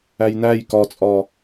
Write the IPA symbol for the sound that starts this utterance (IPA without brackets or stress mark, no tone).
æ